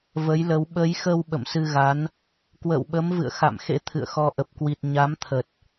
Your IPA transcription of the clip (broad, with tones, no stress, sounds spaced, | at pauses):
v ə˨˦ j l ə˨˦ w ɓ ə˨˦ j x ə˧ w ɓ ə̰˧˨ m s ɨ˧ ɣ a˨˦ n | k w ə̰ː˧˨ w ɓ ə˨˦ m v ɨ̰˧˨ ə̯ x a̰˧˨ m x ḛ˧˥ t̪ʰ ɨ̰˧˨ ə̯ x ɔ˧ ʔ ə˨˩ p̚ k w i˨˩ t̚ ɲ a˨˦ m t̪ʰ ə˨˩ t̚